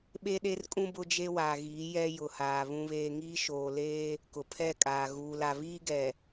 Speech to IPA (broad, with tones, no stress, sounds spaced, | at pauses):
ɓ e˦ ɗ e˦ r kʼ ũ˦ b ʊ˦ d͡ʒ e˦ w aː˨ ɣ iː˨˦ j ɛ˦ j ʊ˨ h aː˨ β ũ˨ β eː˨ ŋ iː˦ ʃ oː˨ l eː˦ | k ʊ˨ pʰ ɛ˦˨ kʼ aː˨ ɣ uː˨ l a˨ β iː˦ ɡ ɛ˨